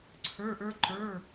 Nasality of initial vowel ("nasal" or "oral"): oral